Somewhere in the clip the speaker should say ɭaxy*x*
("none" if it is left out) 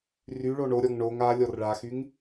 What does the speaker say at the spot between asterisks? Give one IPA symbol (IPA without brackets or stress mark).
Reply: ŋ